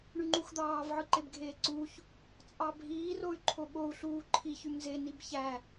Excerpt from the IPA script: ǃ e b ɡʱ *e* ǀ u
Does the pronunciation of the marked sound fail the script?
yes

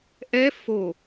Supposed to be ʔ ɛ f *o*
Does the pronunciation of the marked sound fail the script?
no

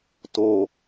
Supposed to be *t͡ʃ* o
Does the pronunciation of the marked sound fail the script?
yes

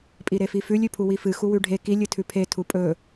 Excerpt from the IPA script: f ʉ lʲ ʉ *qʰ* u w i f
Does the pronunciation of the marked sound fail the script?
yes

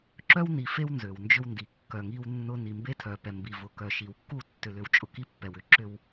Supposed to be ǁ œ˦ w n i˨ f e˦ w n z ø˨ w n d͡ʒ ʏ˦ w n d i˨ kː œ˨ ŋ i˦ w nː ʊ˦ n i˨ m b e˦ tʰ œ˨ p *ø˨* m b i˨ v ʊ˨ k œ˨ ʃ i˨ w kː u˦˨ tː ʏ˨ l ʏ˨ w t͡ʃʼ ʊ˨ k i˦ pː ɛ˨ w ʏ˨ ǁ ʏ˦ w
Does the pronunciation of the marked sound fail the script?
yes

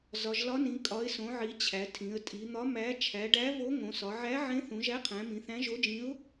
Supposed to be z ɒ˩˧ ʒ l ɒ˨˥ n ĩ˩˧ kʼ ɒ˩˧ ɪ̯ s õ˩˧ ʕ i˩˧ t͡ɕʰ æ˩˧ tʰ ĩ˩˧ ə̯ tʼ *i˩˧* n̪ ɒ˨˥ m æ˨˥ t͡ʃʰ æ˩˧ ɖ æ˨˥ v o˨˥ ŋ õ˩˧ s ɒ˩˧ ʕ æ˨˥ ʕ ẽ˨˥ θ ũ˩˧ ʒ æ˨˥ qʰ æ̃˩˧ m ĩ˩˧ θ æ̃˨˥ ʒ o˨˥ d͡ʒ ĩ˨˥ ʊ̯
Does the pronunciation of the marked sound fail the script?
no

